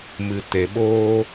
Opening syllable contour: low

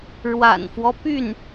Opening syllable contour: low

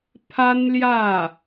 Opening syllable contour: high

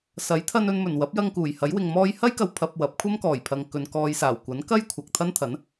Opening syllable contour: rising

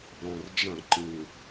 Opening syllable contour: low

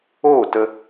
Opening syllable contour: falling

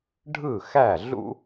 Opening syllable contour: falling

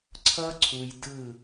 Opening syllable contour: high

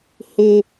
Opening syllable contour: high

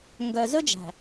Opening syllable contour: low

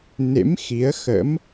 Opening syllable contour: rising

